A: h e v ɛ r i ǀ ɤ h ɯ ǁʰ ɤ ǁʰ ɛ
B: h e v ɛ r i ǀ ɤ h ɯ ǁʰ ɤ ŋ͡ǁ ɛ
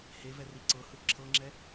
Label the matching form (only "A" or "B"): B